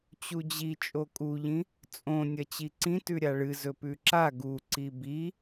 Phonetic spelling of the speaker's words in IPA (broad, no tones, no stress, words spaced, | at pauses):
t͡ɕud͡ʑi t͡ʃʼokʼuʎĩ | t͡sʼõnʲɐ t͡ɕiǀĩ tʉɾʲaɭɨ zɵpʉǁa ɡuǀi bi